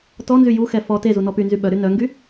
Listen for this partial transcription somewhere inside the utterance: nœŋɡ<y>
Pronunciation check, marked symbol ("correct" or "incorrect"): correct